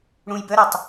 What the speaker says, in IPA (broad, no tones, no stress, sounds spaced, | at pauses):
ɽ ũ j b ə ɾ ɯ tˤ